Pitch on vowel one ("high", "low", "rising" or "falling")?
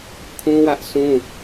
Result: high